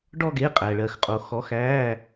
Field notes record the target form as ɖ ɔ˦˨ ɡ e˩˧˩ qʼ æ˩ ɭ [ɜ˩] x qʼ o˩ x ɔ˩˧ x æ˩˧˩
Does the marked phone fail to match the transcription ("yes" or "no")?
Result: no